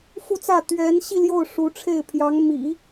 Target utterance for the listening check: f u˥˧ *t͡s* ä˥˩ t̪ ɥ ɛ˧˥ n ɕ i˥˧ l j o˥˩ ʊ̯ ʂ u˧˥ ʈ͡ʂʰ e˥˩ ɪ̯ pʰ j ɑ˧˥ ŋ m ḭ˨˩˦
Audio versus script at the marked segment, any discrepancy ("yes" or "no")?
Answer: no